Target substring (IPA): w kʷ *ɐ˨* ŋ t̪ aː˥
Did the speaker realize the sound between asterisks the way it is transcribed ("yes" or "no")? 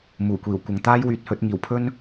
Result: yes